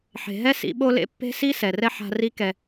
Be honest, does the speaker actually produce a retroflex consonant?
no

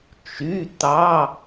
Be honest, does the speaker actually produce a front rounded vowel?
yes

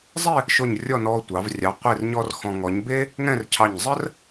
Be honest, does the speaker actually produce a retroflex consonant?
no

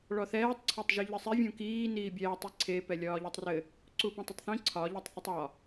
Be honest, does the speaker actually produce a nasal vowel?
yes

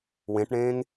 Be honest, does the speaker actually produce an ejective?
no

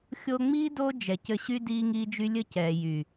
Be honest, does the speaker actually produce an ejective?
no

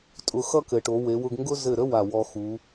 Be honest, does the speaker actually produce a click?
no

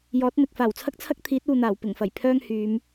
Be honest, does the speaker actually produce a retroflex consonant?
no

